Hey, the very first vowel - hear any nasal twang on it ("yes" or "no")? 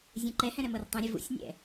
yes